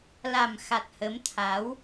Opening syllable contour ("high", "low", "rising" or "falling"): low